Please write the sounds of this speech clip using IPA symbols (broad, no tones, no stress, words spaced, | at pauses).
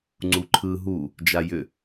ŋ͡ǀuǃʰɯ ɦu | d͡ʒajʏ